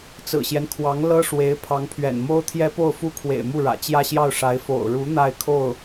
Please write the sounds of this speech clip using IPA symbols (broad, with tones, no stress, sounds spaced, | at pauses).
t͡s ɹ̩˨˩ ɕ j ɛ˦ n kʰ w ɑ˧˥ ŋ l ɤ˥ ʂ w e˧˥ ɪ̯ pʰ ɑ˧˥ ŋ pʰ ɥ ɛ̰˨˩ n m o˥ ʊ̯ t̪ʰ j ɛ˥ p o˥˩ ʊ̯ f u˥ kʰ w ḛ˨˩ ɪ̯ m u˥˩ ɻ ä̰˨˩ t͡ɕ j ä˥˧ ɕ j ɑ˥˩ ʊ̯ ʂ a˧˥ ɪ̯ f o̰˨˩ ʊ̯ ɻ u˧˥ n̪ a˥˧ ɪ̯ kʰ o˥˩ ʊ̯